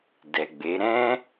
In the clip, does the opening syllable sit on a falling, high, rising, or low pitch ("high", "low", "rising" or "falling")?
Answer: low